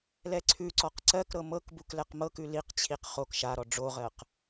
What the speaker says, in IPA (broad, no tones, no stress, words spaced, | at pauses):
lɛǀʰʉǀɔq ǀɜkɾɤ mɤkbuk lɛqmɤkʉ liqt͡ɕʰiq χok ʃaɾɔ ɖ͡ʐoʁɜq